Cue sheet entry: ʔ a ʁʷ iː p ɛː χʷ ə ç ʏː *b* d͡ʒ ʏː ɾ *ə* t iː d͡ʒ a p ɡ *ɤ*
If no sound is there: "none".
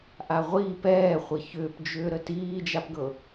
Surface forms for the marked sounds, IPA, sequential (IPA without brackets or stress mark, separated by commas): p, ə, ɤ